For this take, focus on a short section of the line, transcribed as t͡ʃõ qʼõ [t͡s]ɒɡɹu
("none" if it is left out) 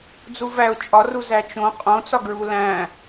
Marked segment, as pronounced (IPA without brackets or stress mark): t͡s